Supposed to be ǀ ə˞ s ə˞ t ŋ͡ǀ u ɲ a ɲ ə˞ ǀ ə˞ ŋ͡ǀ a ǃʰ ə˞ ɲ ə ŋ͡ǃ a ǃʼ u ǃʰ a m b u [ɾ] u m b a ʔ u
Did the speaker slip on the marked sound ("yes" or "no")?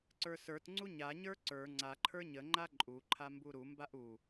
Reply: no